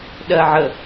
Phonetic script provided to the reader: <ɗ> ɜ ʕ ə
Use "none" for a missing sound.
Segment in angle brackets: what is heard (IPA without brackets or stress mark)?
ɗ